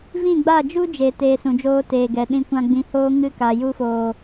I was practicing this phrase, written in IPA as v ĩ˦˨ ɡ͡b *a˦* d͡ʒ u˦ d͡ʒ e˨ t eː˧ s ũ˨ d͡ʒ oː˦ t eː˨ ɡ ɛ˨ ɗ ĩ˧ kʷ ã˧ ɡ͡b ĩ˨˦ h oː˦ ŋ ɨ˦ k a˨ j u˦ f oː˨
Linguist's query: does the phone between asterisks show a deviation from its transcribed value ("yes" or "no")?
yes